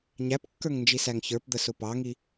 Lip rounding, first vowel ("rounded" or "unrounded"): unrounded